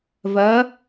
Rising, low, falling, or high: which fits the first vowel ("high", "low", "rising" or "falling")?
rising